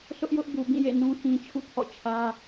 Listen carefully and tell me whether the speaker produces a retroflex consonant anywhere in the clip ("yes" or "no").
no